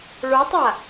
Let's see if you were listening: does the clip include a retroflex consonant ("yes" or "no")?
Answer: yes